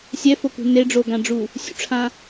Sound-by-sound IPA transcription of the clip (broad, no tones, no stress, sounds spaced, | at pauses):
sʲ ɛ f o k ṳ n e ɖ͡ʐ o ɡ ã ɖ͡ʐ u | sʲ ṵ ʈ͡ʂʰ ã